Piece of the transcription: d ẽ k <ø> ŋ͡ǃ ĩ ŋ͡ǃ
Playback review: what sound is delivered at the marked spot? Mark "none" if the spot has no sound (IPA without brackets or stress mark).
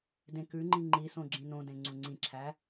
ʉ